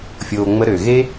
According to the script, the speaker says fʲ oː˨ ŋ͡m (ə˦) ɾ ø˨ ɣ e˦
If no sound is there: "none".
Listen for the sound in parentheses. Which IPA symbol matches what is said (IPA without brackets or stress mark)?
ə˦